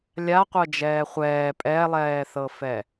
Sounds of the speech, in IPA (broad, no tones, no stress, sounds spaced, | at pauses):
lʲ a qʷ ɤ d͡ʒ ɛː χʷ ɛː pʼ ɛ lˠ ɛː θ ɤ f ɛ